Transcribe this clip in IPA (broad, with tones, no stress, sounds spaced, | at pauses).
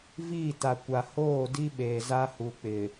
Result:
v iː˦˨ t a˨ kʷ a˨ h oː˦˨ d i˦ ɓ eː˨ z a˦ h u˨ k͡p ɪ˨